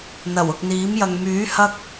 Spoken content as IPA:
n̪ɐ˨˩w ʊ˨k̚n̪iː˨˥mjɐ˨ŋ myː˨˥ hɐ˥k̚

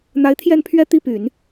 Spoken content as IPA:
n̪a˧˥ɪ̯t̪ʰjɛ˥˩npʰɥɛ˥ t̪i˥˩py˨˩˦n

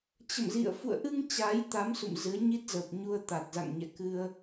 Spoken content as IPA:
t͡ɕə̰˧˨mzḭ˧˨ə̯ fṵ˧˨ə̯ʔɨ˧ŋ t͡ɕaː˨˦jt̪a˨˦m sṵ˧˨mzɨ˨˦ə̯ ɲi˦˥t̚zə˨˩p̚ ɲu˧ə̯t̪a˨˩t̚za̰˧˨ŋ ɲɛ̰˧˨kɨ˧ə̯

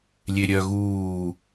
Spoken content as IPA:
lʲeɾʲœ ɣuː

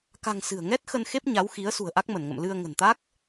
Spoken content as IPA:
ka̤˨˩ŋ sɨ̤˨˩ə̯ŋɛ˦˥t̚ xə˧nxe˦˥p̚ ɲa˨˦wxi˨˦ə̯ sṳ˨˩ə̯ʔa˦˥k̚mə˧˩nŋə̰˧˨m lɨ˧ə̯ ŋə̤˨˩nt̪a˦˥k̚

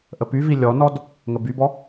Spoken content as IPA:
ʔəpyvi lʲɔnɔd | ŋəbybɔ

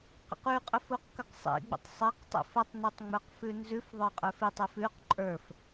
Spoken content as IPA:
qə̰qʉqʼəf uqkəqsˤḭɡ͡bə̰tˤ sˤɛqtˤḭf ətˤnʉtˤ ŋ͡mə˞qfʉnzʉfðˤə˞ qʼə˞fitˤif ʉq ǃʼə˞f

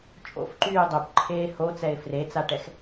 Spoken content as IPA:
t͡ʃʼo̰fǃyː dˤøpǃʰeː hot͡sɛɪ̯ fret͡saʈɛx

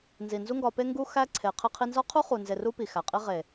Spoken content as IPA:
nzi˨nzu˦ŋɡɒ˧ pe˧ŋɡu˧ xæ˦ǀʰe˨ qʰe˧qʰi˧nzɒ˦qʰu˦ χu˨ nze˨ru˧ pi˨xæ˨ qʼi˧ʁe˨

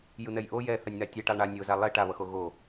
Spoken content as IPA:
jɯn̪ɛjʔo jɛ θanʲn̪atʲɛʈalˠ ɳa nʲoza lˠe ʈaβʌxo ɣo

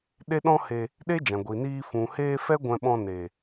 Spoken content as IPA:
ɗe˦ɗɔ̃˦ he˧ | ɗe˦d͡ʒã˨ ɡʷi˨niː˧ fũ˨heː˧ fɛ˦ɡʷɛ̃˧ɓɔ̃˧ ne˨

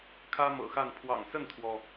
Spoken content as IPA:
kʰä˦mɤ̰˨˩xa˥˨n pʰwɑ̰˨˩ŋsə˥˨nt̪ʰwɔ˩

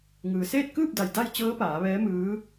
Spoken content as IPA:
ŋɯː˩seː˥˨t̚ kɯː˥˨p̚da˩j da˥˨j t͡ɕɤː˧˥ paː˩˧ʋɛː˧˥mɯː˧˥

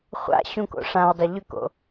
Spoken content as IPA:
χʷa̰ ɕũko̰ʂãwdˤʏ ʎʏko̰

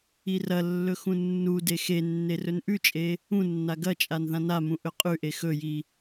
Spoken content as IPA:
irɐlːɵ xũnːude xe nːerɵnʔʉt͡ʃʼe | ũnːa ɡɐt͡ʃʼan ðãnamũ ʔɵqʼʉʔe xɵji

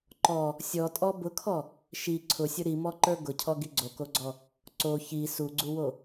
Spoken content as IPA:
ǃɔ | sʲɔtʼɔ bʊkʰɔ | ʃi ǀʰʊsʲʊ ɾimɔǃə˞ ɡʊcʰɔɡi ɡ͡ǀokoɡ͡ǀɔ | ǀo çi suɡ͡ǀuwo

